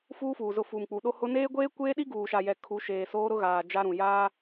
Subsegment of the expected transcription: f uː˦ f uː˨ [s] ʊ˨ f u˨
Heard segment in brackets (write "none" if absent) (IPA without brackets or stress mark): z